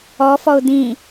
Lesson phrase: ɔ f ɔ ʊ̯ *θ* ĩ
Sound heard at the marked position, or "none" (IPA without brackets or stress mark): d̪